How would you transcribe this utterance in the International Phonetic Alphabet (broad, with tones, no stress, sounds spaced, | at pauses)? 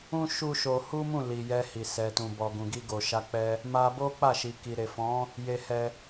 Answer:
ũ˦ ʃ u˦ ʃ o˧ h u˦ m ũ˦˨ l i˨ j ɛ˧ h i˨ s ɛ˨ t ũ˨ b ɔ˨ ɡ ũ˨ ɡ i˧ ɡ o˨ ʃ a˧ k͡p ɛ˧ | m a˧ b o˦ k͡p a˦˨ ʃ i˨ k i˨ ɾ e˨ f ɔ̃˨˦ | j e˧ h ɛ˧